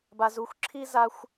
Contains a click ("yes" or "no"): yes